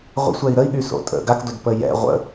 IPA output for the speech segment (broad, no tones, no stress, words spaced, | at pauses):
ʁʷə̰ sʷɛi̯ɾəi̯ɠy so̰tʼə̰ ɡakdod pəjɛ̰ ʁʷə̰